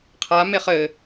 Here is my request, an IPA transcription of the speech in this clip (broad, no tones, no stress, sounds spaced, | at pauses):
qʰ a m e χ ɘ